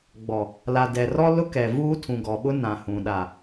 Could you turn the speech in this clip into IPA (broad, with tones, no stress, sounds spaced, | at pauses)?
ɡ͡b ɔ˨ | l a˨ d ɛ˨ r ɔ˦ l ʊ˦ k ɛ˨ v uː˦ tʰ ũ˨ ɡ ɔ˨ ɓ ʊ˦ n ã˨ h ũ˨ ɗ a˨